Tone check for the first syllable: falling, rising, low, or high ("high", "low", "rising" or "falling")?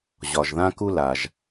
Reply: low